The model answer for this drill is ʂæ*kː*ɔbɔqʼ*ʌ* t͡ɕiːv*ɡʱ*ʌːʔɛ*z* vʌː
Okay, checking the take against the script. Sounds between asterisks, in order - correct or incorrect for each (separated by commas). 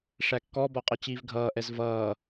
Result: correct, correct, correct, correct